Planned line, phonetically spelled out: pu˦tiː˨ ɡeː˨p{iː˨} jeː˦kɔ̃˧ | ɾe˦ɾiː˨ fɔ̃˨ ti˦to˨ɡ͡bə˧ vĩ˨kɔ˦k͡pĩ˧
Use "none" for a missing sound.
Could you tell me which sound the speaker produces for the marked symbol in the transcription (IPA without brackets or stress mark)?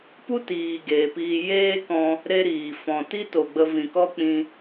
iː˧